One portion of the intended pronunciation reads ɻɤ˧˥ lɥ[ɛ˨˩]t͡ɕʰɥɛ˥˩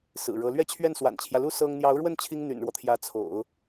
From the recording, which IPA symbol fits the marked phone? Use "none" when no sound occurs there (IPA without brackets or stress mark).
ɛ˥